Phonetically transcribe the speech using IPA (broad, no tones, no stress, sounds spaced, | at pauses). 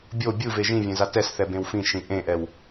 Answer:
bʲ o bʲ ɯ v e ʒ ĩ vʲ ẽ z a t ɛ s θ ɛ b ẽ w f ĩ ʃ ĩ ʔ ẽ ʔ ɛ w